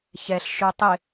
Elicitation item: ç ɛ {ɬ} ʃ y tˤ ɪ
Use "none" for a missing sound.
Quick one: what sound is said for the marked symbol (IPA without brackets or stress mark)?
ɬ